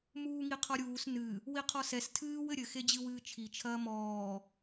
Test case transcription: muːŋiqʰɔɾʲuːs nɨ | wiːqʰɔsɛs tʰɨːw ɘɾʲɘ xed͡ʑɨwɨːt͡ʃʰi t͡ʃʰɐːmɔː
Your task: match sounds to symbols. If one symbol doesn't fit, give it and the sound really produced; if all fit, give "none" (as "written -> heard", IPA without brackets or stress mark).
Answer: iː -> i